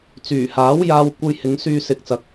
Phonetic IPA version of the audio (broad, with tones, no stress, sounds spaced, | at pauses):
t͡s yː˨˩ h aː˨˥ w j aː˧ w kʷ ɐ˧ j h ɪ˨˧ ŋ s yː˧ s ɪ˧ k̚ t͡s ɐ˧ k̚